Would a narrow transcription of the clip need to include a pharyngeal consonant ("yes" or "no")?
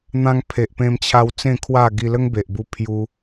no